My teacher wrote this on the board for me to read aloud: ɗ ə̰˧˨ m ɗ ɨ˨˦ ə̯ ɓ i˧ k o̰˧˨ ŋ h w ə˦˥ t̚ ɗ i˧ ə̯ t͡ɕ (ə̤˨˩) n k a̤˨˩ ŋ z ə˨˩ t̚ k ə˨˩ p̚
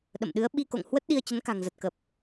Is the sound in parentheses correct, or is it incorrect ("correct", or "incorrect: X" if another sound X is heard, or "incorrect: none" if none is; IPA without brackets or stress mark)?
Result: incorrect: ə˨˦